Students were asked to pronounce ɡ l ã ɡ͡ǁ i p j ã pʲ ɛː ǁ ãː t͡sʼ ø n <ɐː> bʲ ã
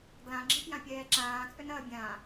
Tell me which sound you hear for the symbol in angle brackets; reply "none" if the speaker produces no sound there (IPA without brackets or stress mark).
ɐː